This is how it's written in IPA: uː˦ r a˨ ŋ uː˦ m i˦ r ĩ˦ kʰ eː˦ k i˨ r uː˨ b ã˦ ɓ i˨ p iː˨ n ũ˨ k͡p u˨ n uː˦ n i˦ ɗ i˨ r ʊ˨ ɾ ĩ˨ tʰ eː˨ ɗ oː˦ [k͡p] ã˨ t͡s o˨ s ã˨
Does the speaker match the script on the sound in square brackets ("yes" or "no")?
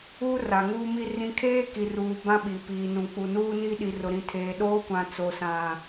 no